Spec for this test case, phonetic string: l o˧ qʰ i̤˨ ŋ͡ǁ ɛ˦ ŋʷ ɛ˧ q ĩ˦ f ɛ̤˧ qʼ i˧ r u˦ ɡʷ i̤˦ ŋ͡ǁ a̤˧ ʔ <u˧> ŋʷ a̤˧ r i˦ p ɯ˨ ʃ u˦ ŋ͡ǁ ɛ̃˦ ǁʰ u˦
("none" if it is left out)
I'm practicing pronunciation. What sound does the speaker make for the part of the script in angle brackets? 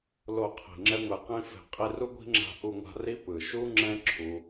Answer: u˧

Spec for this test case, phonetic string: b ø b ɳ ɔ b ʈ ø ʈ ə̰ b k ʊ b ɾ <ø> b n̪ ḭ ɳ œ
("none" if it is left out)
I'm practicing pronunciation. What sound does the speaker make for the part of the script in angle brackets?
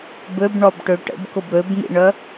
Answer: ø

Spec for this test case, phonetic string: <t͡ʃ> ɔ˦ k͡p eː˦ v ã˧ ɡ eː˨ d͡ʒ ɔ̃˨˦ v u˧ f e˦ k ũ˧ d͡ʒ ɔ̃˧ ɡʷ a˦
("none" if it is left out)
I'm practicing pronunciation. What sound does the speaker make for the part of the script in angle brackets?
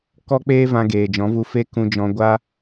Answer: k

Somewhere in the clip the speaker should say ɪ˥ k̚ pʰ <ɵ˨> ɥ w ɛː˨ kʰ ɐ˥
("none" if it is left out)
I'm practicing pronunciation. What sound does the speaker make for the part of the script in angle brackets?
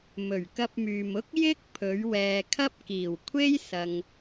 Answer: ɵ˨˧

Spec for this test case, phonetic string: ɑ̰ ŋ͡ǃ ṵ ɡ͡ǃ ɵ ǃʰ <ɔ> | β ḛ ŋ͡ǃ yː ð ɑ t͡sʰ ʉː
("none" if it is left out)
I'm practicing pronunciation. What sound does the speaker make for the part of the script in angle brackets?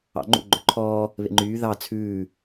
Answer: ɔː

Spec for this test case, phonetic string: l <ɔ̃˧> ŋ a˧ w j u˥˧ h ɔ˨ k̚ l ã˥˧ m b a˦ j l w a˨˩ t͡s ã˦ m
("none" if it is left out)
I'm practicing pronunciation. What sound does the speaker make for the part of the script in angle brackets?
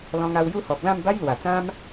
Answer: ɔ̃˧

